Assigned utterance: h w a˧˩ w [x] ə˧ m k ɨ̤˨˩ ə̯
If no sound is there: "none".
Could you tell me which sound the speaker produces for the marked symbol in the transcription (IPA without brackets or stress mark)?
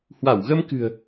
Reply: ɣ